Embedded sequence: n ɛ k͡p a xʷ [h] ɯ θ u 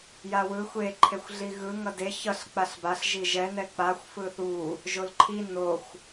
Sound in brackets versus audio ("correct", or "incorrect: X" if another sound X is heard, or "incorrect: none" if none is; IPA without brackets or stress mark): incorrect: f